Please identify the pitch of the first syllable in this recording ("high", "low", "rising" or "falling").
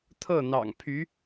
falling